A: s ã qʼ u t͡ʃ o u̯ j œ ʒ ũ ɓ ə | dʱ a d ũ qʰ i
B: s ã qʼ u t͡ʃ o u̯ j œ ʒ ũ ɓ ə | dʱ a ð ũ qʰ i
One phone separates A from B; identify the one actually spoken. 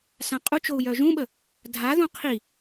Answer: B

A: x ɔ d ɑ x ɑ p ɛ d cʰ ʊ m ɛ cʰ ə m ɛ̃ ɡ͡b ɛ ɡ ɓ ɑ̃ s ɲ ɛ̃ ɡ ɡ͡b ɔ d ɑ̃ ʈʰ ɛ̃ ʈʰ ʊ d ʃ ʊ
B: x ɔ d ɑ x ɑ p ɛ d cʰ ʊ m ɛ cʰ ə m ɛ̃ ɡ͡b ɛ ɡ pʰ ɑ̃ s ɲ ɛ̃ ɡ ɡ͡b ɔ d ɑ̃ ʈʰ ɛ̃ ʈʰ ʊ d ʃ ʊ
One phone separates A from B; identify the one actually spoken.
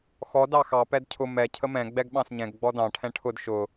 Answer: A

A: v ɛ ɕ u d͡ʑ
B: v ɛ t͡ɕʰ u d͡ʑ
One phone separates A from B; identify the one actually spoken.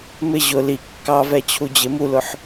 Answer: B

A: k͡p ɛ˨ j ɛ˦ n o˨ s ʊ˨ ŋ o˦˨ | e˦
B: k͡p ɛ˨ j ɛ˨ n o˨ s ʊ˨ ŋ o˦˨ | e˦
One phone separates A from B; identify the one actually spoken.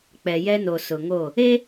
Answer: A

